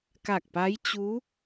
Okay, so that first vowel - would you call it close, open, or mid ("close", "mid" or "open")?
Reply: open